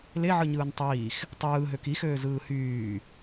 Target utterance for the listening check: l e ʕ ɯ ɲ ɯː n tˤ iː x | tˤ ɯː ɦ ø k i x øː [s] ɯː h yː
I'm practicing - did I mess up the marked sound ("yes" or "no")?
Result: yes